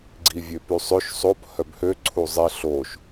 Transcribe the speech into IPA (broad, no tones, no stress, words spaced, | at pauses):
ɡ͡ǀivʲøpysˤøʃ sˤop hœbhø ǀʰuzˤi ɬoʃ